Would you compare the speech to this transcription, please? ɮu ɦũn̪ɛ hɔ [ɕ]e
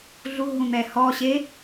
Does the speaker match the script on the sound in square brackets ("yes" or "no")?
yes